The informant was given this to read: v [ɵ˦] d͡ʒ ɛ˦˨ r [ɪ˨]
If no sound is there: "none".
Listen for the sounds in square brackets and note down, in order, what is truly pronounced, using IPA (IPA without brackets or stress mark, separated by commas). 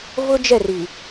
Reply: ʊ˦, i˨